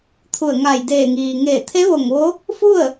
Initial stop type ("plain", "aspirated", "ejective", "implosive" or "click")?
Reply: aspirated